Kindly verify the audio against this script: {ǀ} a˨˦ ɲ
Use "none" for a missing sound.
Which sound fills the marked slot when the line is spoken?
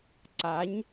ǀ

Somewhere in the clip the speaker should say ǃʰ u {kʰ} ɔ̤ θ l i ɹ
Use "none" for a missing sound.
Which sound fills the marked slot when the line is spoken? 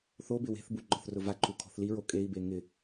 kʰ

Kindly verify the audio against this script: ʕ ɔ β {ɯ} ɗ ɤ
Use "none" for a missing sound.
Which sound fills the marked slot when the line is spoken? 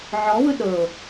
ɯ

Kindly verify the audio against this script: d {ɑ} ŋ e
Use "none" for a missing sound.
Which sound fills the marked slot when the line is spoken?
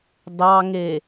ɑ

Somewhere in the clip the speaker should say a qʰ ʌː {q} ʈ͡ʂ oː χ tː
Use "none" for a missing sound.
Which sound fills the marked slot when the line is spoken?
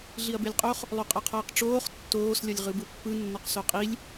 q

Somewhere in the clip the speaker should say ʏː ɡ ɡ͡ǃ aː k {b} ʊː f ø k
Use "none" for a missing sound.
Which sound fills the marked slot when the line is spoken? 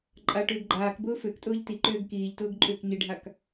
b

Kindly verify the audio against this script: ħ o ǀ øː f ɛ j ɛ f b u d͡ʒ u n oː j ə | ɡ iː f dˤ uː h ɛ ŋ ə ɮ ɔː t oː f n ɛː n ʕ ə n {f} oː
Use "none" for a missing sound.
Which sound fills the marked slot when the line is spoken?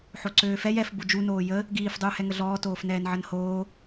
h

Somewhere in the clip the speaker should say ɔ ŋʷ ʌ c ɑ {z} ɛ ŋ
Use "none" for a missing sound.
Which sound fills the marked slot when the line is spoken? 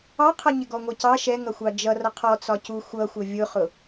ʃ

